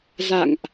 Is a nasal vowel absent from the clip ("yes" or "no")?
yes